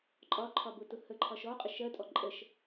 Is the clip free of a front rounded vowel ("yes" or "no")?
yes